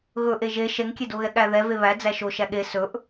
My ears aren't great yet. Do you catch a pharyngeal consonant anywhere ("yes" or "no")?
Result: no